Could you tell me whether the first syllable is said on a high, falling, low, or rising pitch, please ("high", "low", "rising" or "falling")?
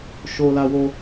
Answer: low